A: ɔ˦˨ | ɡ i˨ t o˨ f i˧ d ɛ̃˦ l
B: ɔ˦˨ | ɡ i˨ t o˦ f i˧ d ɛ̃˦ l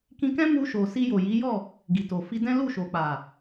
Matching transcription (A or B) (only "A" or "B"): A